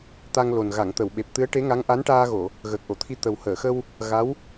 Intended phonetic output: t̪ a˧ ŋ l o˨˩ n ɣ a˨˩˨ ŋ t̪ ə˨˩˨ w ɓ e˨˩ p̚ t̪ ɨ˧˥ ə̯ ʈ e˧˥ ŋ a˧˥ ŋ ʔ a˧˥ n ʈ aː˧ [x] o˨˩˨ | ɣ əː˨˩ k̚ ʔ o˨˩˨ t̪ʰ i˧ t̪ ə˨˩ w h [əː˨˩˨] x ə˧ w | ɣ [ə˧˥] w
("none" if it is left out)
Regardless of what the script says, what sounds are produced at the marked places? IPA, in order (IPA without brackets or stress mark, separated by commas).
ɣ, əː˨˩˨, a˧˥